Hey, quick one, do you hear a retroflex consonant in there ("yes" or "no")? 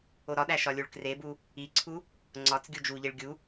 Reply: yes